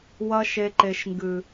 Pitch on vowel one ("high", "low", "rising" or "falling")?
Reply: high